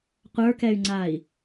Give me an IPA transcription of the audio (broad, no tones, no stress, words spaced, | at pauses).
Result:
qʷə˞kɛy̯ŋ͡ǀai̯